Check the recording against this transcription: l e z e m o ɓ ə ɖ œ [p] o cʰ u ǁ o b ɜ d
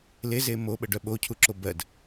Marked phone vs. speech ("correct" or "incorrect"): incorrect